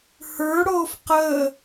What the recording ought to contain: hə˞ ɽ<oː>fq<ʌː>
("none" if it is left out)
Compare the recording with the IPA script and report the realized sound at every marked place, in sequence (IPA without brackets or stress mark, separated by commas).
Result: oː, əː